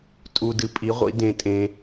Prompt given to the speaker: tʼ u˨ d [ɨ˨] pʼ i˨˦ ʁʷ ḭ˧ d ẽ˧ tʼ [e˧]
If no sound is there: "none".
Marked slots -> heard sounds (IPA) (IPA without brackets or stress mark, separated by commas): ɨ˨, ẽ˧